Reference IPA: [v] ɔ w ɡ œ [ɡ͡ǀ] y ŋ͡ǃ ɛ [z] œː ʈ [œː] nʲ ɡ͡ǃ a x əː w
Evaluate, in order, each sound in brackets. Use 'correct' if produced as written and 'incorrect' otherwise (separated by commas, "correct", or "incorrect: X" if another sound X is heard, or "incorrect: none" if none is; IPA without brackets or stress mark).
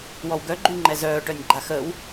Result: incorrect: w, incorrect: ɡ͡ǃ, correct, incorrect: œ